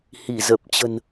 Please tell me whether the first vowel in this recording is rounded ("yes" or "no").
no